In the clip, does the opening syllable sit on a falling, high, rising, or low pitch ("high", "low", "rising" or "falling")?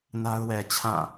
high